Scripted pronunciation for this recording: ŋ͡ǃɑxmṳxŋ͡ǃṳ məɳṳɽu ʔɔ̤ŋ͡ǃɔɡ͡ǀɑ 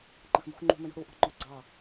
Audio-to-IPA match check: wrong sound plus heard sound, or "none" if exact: none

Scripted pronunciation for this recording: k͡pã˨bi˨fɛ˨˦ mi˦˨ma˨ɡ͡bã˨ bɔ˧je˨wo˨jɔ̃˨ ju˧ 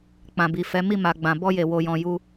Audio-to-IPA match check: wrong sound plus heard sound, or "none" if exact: none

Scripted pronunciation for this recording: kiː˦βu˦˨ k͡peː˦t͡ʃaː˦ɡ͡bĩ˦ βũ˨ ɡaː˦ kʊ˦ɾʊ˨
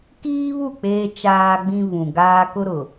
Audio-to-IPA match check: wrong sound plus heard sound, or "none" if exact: none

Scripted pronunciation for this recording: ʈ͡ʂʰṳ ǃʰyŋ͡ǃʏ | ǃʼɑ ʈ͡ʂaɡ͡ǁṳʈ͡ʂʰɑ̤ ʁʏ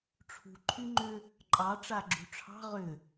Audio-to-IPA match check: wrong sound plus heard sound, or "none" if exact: none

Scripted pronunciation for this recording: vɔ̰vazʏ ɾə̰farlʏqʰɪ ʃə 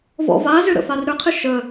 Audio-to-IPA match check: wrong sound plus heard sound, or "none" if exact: l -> ɾ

